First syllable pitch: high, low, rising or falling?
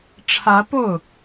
rising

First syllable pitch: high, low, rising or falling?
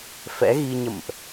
rising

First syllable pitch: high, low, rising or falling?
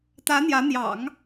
rising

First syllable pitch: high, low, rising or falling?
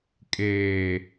low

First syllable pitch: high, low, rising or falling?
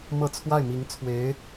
falling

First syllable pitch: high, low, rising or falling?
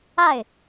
falling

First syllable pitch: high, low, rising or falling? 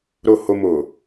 low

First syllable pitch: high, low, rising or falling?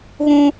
high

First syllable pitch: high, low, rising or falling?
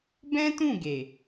high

